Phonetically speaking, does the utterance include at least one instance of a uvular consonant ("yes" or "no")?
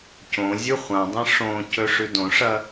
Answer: yes